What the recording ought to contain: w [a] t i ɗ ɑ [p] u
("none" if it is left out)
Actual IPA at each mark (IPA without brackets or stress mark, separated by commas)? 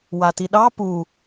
a, p